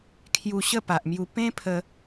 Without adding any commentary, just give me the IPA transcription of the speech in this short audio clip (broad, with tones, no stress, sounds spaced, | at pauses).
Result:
kʰ j u˧ ɕ ə˥˧ p a˨ ʔ m j u˧ p ẽ˦ pʰ ə˧